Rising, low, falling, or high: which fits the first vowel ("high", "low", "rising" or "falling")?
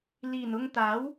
low